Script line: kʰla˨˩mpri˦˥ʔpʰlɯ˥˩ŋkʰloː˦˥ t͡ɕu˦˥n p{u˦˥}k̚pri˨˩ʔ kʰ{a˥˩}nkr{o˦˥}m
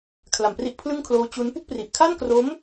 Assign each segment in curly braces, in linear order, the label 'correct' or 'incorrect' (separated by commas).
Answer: incorrect, correct, correct